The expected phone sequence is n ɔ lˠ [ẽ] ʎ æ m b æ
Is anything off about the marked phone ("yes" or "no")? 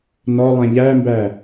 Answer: no